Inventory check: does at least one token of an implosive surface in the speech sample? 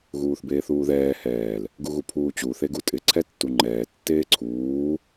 no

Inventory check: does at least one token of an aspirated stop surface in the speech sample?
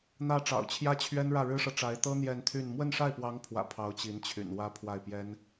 yes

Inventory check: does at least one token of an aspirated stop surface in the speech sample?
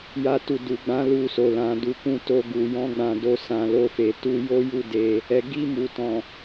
no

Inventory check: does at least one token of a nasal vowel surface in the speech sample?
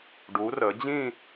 yes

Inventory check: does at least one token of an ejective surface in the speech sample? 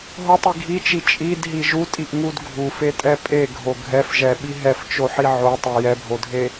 yes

